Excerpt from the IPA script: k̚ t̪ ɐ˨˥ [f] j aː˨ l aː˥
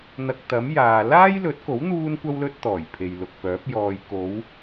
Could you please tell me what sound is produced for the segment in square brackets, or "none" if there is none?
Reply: m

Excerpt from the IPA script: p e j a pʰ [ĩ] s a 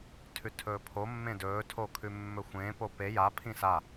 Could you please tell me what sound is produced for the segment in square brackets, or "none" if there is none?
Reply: ĩ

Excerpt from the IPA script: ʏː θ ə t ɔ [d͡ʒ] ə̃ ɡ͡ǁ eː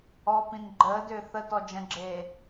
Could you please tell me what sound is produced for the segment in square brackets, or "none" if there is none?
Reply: d͡ʒ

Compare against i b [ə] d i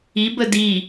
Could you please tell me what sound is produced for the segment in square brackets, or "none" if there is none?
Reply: ə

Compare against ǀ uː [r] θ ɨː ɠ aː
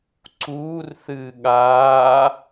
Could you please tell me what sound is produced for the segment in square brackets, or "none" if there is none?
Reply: r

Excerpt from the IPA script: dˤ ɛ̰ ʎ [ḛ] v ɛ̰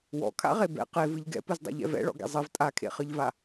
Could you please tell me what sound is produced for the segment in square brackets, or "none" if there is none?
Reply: ɛ̰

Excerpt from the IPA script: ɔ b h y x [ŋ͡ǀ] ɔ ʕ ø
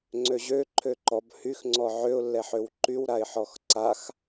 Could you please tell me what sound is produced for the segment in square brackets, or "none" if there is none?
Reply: ŋ͡ǀ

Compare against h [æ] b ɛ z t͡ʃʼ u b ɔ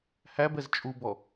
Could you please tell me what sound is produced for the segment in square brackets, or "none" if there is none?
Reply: æ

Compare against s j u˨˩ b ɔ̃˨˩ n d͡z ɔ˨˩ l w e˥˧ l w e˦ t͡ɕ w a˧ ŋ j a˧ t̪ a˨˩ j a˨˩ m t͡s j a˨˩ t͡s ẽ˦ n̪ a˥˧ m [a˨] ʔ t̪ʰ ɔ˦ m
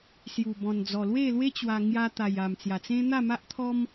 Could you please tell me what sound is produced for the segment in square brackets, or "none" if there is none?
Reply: a˦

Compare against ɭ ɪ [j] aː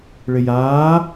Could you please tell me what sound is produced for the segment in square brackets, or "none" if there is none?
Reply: j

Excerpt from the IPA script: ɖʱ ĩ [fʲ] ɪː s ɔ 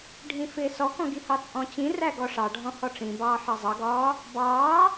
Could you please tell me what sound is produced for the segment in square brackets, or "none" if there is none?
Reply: f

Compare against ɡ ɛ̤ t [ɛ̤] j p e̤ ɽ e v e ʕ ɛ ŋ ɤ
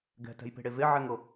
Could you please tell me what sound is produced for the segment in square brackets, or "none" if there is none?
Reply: ɛ̤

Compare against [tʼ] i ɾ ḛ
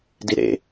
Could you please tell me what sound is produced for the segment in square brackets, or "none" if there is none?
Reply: d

